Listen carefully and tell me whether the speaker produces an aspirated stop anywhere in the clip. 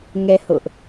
no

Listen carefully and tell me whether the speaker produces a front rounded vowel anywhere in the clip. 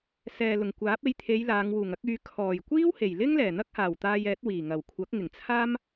yes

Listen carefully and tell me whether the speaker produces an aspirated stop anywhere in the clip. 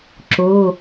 no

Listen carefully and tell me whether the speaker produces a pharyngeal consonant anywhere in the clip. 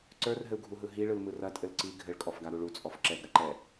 no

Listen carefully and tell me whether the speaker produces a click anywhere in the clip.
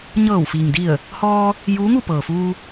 no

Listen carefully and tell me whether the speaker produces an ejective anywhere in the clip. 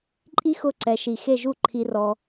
yes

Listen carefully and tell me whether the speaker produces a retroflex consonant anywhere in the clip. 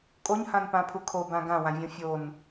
no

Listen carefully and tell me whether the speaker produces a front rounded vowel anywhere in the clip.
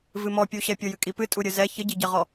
no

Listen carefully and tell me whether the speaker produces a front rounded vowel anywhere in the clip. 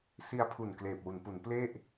no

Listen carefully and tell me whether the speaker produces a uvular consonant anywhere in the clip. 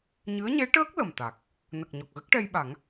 no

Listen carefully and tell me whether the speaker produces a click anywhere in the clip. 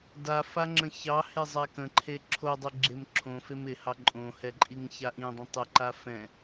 yes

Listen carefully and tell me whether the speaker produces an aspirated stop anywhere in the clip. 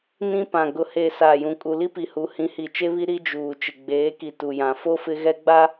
no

